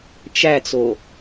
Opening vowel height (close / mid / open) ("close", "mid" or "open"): open